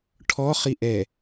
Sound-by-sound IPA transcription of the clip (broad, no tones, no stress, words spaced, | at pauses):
ʈʰɔχi ʔɛ